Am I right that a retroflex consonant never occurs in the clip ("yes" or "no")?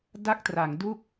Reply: yes